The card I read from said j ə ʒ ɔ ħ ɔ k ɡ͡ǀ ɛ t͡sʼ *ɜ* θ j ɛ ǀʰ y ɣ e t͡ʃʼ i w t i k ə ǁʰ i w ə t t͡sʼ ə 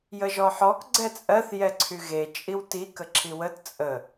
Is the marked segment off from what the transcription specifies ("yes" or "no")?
no